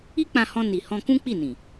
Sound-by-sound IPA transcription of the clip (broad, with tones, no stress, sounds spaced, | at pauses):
i˦ k͡p ã˧ h ɔ̃˧ n i˨ h ɔ̃˧ k ũ˦ k͡p i˦˨ n ĩ˨